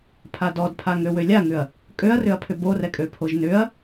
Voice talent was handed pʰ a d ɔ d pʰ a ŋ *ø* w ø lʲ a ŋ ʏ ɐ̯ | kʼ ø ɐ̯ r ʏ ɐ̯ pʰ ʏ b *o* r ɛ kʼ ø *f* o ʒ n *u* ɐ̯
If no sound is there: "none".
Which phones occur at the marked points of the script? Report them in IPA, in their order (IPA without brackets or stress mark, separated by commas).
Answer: ø, o, pʰ, ʏ